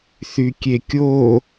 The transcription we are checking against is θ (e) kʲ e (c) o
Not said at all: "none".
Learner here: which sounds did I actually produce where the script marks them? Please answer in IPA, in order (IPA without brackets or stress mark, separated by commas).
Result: y, kʲ